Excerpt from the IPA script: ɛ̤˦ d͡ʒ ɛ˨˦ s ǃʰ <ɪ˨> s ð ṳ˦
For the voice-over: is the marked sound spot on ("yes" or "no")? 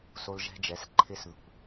no